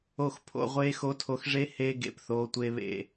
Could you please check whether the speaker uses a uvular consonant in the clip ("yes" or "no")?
yes